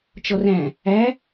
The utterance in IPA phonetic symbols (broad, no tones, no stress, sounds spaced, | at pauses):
t͡ʃ ɔ r æ̃ | æ